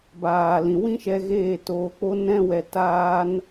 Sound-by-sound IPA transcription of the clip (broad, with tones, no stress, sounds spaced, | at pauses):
b aː˨ l ĩ˨ w ĩ˦ ʃ ɛ˧ ɣ eː˦˨ t oː˧ k͡p o˦ n ɛ̃˦ w ɛ˧ t aː˦ n